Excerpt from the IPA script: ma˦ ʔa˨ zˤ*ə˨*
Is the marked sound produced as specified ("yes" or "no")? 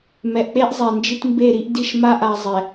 no